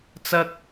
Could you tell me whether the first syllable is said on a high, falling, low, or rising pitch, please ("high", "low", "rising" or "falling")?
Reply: high